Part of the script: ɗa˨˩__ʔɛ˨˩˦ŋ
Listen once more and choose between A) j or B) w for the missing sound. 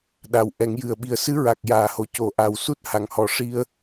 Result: B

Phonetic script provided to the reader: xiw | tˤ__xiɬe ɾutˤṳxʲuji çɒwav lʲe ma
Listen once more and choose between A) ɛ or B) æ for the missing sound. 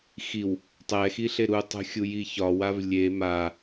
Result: A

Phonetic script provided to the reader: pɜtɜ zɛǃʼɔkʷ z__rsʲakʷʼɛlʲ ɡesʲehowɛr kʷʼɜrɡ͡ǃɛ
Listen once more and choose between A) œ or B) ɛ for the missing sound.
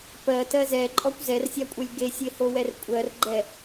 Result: B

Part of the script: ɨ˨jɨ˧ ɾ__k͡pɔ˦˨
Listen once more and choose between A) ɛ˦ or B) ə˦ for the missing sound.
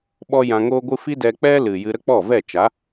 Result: B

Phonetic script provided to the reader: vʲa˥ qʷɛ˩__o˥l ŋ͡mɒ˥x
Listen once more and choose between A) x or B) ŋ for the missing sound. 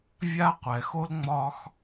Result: A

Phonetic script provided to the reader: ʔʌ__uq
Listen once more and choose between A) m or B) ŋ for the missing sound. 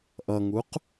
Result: B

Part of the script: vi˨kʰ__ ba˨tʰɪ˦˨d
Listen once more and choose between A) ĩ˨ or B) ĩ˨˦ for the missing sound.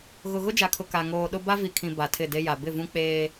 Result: A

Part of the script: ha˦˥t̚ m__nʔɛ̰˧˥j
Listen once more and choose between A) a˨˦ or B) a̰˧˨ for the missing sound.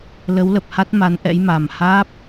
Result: A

